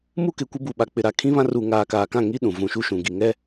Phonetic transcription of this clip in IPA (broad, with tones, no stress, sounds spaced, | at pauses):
m u˦ k ɪ˨ kʷ ɪ˦ b u˨ ɓ a˨ k͡p ɪ˨ ɾ a˨ kʰ ĩ˦ β ã˦ r u˨ ŋ aː˨ k aː˨ k ã˦˨ ŋ i˦ ɗ ũ˨ v ũ˨ ʃ u˦ ʃ ũ˨ ɡ i˨ ŋ ɛ˦